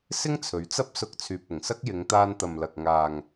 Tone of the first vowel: high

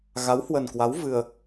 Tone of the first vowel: rising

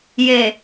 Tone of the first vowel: low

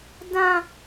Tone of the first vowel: high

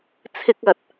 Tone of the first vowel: high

